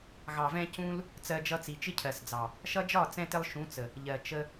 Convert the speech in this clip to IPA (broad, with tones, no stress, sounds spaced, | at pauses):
ɣ ɑ˨ v ɛ̃˧ c ũ˦ l | t͡s ɜ˧ d͡ʒ ʌ˧ t͡s i˨ t͡ʃ ɪ˦ cʰ ɜ˨ s d͡z ɑ˨ | ʃ ʌ˦ d͡ʒ ɒ˦˨ t͡s ɛ̃˧ t ɪ˧ lˠ ʃ ũ˨˦ t͡s ə˨ | ʎ ɜ˨ t͡ʃ ə˧